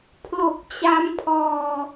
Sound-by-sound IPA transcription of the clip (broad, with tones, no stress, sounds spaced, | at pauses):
pʰ l o˨˩ k̚ t͡ɕ a˦˥ m pʰ ɔː˧